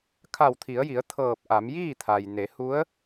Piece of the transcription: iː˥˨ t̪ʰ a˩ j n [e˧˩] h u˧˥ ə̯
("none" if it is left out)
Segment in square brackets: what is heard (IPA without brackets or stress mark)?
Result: e˩˧